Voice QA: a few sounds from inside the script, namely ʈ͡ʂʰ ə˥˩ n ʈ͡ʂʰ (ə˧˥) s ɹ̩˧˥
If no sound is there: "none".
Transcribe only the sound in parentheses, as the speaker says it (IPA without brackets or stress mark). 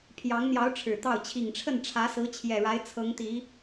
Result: ä˧˥